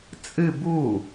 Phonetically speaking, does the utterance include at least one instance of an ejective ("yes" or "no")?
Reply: yes